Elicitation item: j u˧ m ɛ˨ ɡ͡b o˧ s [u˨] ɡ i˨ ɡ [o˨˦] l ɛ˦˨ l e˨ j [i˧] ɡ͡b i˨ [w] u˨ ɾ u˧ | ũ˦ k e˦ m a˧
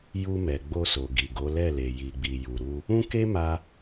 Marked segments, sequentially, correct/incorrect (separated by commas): incorrect, correct, incorrect, incorrect